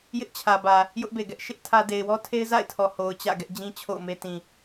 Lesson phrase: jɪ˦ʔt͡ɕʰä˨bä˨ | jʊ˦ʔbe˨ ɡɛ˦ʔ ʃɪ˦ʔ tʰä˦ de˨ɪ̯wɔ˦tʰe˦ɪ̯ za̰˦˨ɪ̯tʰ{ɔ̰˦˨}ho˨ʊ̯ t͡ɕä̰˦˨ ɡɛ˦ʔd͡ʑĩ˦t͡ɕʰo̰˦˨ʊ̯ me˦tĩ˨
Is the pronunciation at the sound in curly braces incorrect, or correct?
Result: incorrect